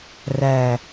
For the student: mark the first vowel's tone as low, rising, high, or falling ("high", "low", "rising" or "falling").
low